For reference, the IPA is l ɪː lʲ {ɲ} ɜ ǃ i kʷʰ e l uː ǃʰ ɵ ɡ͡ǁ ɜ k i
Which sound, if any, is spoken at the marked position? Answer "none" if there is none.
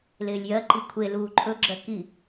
j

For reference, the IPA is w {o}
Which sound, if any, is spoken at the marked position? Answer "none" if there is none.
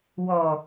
ɔ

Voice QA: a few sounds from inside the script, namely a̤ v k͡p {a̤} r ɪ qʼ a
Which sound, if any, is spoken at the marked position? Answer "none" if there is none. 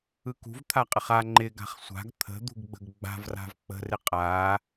ə̤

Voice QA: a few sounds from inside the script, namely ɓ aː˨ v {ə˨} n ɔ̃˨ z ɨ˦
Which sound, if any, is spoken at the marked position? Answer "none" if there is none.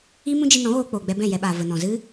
ə˨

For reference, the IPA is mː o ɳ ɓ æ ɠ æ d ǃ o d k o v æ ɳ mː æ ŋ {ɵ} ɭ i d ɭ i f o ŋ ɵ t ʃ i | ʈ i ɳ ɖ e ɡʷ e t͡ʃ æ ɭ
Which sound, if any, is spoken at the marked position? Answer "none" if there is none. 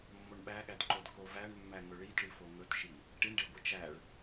ɵ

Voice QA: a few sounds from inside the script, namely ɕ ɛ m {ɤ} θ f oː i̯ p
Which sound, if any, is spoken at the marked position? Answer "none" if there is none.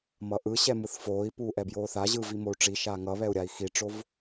ɯ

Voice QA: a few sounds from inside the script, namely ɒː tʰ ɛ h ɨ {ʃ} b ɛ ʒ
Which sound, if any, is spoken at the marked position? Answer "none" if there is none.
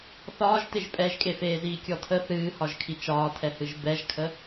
ʒ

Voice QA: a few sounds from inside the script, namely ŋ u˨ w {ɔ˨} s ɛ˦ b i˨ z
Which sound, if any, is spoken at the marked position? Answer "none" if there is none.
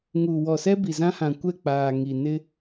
ɔ˨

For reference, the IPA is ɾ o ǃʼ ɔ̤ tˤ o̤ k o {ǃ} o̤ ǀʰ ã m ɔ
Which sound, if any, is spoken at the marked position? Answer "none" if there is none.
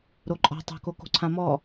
k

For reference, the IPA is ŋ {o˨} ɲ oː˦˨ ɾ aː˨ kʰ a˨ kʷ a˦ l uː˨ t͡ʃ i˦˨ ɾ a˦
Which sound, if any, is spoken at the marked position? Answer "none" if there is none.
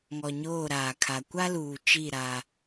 ɔ˨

